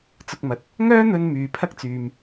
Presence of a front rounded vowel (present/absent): present